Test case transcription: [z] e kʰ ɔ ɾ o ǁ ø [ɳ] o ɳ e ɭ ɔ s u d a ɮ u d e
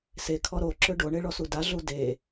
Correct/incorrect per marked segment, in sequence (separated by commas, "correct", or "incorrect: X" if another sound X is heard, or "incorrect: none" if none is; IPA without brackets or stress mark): incorrect: s, incorrect: ɖ